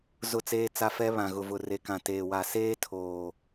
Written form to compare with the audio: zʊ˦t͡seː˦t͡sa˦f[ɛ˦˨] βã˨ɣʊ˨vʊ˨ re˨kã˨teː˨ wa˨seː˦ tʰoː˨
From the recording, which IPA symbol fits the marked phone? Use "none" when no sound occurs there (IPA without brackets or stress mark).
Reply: ɛ˦